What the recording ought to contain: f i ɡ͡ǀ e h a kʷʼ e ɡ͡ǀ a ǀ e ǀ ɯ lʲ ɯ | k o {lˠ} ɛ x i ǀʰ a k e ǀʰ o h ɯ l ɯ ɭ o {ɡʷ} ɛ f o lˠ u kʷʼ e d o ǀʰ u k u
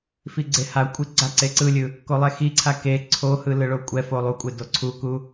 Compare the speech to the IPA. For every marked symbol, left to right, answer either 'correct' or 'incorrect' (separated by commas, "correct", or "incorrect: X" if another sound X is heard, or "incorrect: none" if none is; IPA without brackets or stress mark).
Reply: correct, incorrect: kʷʼ